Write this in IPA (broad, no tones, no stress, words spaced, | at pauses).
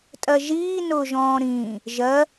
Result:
tʼɜʒiː nʊːʒɔ̃ːɾĩː | ʒɜ